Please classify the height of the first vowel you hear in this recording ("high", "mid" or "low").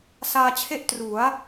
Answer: low